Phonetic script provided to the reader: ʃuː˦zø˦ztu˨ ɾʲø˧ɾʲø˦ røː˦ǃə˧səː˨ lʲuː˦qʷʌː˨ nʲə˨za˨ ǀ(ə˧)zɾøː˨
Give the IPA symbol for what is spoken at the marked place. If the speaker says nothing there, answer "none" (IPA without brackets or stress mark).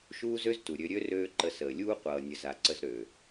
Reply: ə˧